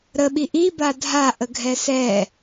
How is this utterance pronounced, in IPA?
ɾəɓi ʔiba dʱaʔəɡʱɛ sɛ

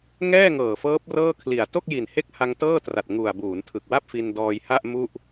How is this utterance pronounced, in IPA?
ŋɛː˥˩ŋɤː˨˩fɤː˦˥p̚ rɤː˥˩kʰli˨˩a̯ to˥˩k̚ji˨˩n he˥˩k̚ha˧ŋ tɤː˥˩tra˨˩t̚ ŋu˨˩a̯ buː˩˦ntʰɯ˨˩k̚wa˥˩p̚ fi˧ndɔː˧j ha˥˩ʔ mu˥˩ʔ

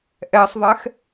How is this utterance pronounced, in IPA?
ʔɛsˤðˤɛx

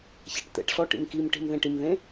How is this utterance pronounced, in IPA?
ça̤ʈt̪ɛ̰ʈɬɔ ʈḭmkimʈi̤m ðẽʈimðẽ

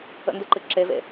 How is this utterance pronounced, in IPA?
ə̰ndɨǃɨ ǁevḛ

